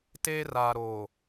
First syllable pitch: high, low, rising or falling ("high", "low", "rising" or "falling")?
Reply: high